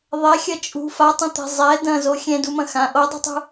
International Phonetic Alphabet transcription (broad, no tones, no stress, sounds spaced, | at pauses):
ðˤ ɛ xʲ ɐ t͡ʃʼ ṳ f a tˤ ɐ̃ t̪ ɛ̤ zˤ ɛ d ɐ̃ z o xʲ ɛ̃ d u m ɐ̃ x ã ʔ o dˤ ṳ tˤ ṳ